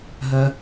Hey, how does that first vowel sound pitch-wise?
high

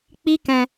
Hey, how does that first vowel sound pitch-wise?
high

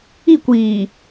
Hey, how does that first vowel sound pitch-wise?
falling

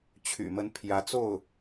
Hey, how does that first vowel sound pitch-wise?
low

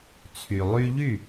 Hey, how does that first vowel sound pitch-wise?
low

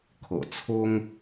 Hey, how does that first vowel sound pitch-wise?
low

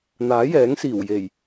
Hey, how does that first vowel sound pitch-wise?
rising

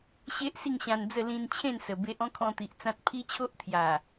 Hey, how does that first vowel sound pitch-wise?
high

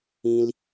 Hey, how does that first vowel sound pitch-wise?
high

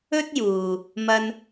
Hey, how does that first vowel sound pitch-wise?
high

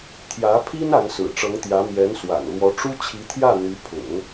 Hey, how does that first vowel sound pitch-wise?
rising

